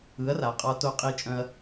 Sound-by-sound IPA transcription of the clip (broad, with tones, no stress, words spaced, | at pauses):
ɯ˩˥ɐ̯ra˩qʼɒ˧ to˧qʼi˧ t͡ʃʼœ̃˧ɐ̯